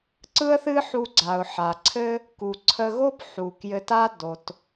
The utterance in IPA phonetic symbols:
ǀ ɯ˥ ə̯ θ ɨ˥ ħ u˧ ɡ͡ǀ a˩ ʊ̯ ħ a˩ ǀʰ ɘ˥ | k u˩ ǀʰ ə˧ ɣ o˥ p ħ u˩ k j ɘ˧ t a˥ d o˩ t

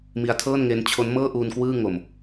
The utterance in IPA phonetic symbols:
m i˦˥ a̯ tʰ ɤː˥˩ n ŋ e˦˥ n t͡ɕʰ o˦˥ n m ɤː˥˩ ʔ uː˧ n k w ɯː˥˩ ŋ o˧ m

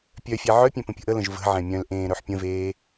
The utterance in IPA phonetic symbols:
pʲ œ fʲ ɛ ʕ œ pʲ ɛ̃ p ə̃ pʲ ə̤ ʔ ə l ə̃ ʒ v ə̤ ʕ ɛ̃ mʲ œ̃ l ʔ ẽː ɾ œ ħ pʲ ə̃ v eː

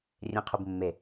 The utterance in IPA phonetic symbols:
rʲ ẽ qʰ u b mː e

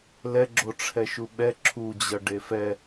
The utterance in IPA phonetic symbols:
l ɛ ɡ͡ǁ o ʈ͡ʂʰ ɛ ʃ u ɓ ɛ ǁʰ u d͡ʑ ʌ ɖ e f ɛ

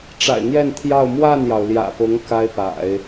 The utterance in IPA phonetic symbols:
ʈ͡ʂ a̰˨˩ ɪ̯ n̪ j ɛ˥˧ n t̪ʰ j ɑ˥˧ ʊ̯ m w a˥˩ n j ɑ˩ ʊ̯ l j ä̰˨˩ p ʊ˧˥ ŋ k a˥ ɪ̯ p a̰˨˩˦ ɪ̯

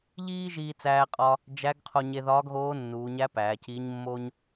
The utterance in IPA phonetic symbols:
ʎ iː˥ ʒ iː˧ t͡s æː˧ qʼ ɒ˧ | d͡ʒ æ˧˥ ɡ qʰ o˧ ɲ e˧ ð ɒː˧˥ ɡ ɣ oː˧˥ nː uː˩˧ ɲ æ˧˥ p æː˩˧ c iː˧˥ ɲ mː o˥ ɲ

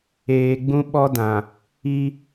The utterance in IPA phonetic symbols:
eː˨ ɡ͡b ũ˦ ɓ ɔ˦ d ã˨ | i˦

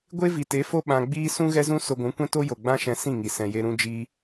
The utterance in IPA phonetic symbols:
ɡʷ e˦ v i˨ t e˨˦ f o˦ ɓ ã˧ ɡ͡b iː˦ s ũ˦ ɣ ɛ˦ z ũ˦ s o˧ ɡʷ ũ˨˦ kʷ ɛ̃˦ t o˦ j o˨ ɡ͡b ã˦ ʃ ɛ̃˧ s ĩ˦˨ ŋ i˨ s ɛ̃˨ j e˧ ɾ ũ˦ d͡ʒ iː˦

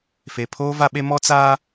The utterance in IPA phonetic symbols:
f e˨ pʰ oː˦ v a˦ ɓ e˦ m ɔ˦ t͡s aː˦

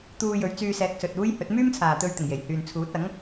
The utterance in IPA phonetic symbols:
t̪ uː˧ j ɵ˨˧ ɥ t͡s yː˧ s ɛː˨˥ k̚ s ɵ˨ t̚ uː˥ j h ɵ˨˥ t̚ m yː˥ m t͡sʰ aː˨ t̪ ɵ˧ ɥ t̪ ɪ˨˩ ŋ j e˨˩ j h yː˨ n t͡sʰ uː˨˥ t̚ ɐ˨˥ ŋ

